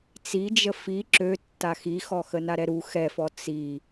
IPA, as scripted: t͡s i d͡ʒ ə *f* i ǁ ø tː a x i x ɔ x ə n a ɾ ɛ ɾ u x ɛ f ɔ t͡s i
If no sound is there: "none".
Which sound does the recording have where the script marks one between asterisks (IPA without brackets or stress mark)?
f